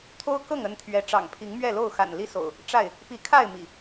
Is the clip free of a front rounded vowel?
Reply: yes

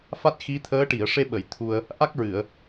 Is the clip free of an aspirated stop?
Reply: no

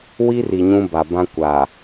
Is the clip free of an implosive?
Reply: yes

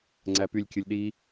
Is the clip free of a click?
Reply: no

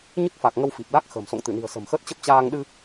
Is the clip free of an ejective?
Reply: yes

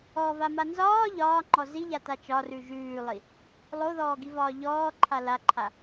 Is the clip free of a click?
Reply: no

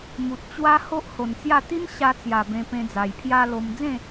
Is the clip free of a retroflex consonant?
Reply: yes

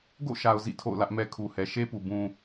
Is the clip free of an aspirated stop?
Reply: no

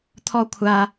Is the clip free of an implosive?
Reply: yes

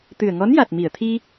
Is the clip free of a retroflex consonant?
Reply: yes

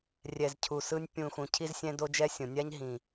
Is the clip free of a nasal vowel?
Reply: no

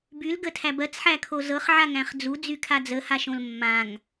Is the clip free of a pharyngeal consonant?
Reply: no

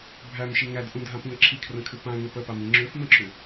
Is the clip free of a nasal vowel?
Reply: no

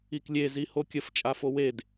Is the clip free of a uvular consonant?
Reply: yes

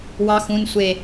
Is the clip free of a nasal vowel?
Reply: no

